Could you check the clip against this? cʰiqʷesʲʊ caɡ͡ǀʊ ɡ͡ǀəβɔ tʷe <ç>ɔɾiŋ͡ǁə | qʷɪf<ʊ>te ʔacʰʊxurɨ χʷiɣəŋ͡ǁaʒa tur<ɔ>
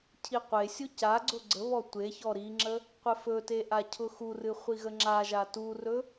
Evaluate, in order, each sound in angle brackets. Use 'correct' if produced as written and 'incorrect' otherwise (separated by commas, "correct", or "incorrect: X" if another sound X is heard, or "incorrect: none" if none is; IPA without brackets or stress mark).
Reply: correct, incorrect: ɵ, incorrect: ɵ